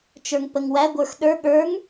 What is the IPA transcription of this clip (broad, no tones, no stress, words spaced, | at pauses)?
t͡ʃə˞ŋpəŋwæ ɡʷə˞xɗə˞ ɠə˞ŋ